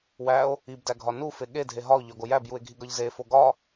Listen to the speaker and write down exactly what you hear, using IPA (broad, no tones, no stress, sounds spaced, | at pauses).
w æ o̯ | i b d æ ɡʱ ɒ n u f e ɠ e dʱ e ɦ ɒ o̯ ʎ ɒ ɡ o j æ b j u e̯ ɡʱ i ɡ ɒ ʎ z e f o ɡ ɒ